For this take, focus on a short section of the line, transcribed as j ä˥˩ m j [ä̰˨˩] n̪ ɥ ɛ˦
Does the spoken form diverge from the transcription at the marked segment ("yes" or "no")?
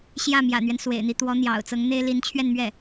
no